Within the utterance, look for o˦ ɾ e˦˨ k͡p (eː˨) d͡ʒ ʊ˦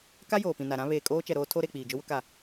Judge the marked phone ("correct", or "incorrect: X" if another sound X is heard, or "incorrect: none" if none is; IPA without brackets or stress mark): incorrect: iː˨